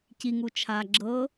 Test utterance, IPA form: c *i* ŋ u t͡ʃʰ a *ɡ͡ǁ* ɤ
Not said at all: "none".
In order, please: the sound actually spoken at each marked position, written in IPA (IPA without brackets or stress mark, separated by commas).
i, ɡ͡ǁ